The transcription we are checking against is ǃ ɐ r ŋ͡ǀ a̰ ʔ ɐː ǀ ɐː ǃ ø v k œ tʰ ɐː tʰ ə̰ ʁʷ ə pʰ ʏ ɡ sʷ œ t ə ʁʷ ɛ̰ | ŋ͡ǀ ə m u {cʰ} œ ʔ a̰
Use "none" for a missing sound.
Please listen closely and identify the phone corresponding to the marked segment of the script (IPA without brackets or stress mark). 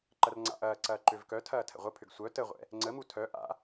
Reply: tʰ